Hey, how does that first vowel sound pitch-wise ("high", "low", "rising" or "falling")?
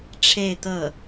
falling